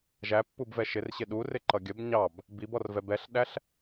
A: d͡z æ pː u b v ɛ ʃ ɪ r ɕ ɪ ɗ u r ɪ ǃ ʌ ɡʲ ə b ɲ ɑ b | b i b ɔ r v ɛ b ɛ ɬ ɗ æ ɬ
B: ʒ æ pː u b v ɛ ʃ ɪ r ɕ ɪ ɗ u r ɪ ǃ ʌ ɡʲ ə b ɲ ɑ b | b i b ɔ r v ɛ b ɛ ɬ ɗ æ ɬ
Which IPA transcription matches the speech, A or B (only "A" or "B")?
B